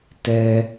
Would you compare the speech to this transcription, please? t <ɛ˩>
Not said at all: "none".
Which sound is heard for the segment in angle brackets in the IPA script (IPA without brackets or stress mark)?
ɛ˩